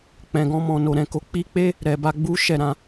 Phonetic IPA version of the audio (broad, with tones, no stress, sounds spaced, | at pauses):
k͡p ɛ̃˨ ɡ ɔ̃˧ m ɔ̃˨ n o˨ ɾ ɛ̃˨ k o˧ k͡p i˦ k͡p e˦ | ɾ ɛ˨ b a˧ ɡ͡b u˦ ʃ ɛ˦˨ ɾ ã˧